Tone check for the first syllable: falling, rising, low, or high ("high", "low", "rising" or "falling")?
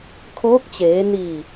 rising